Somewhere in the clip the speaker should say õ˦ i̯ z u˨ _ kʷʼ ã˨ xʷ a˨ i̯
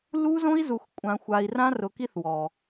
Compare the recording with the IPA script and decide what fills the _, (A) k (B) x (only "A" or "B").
B